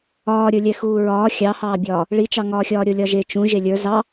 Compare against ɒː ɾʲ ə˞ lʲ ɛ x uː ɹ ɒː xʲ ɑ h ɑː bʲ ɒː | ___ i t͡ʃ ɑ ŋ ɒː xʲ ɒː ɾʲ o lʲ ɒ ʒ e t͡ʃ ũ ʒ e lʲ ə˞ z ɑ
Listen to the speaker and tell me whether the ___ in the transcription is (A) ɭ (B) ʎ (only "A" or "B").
A